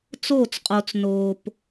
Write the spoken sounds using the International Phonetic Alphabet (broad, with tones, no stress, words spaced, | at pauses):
t͡soː˦˨t͡sqʼo˨t͡s noː˨p